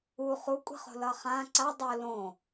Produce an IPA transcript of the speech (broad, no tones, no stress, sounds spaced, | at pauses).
u χ u kʷʼ i̤ χ o̤ l ʌ χ ã ǀ a dˤ o l õ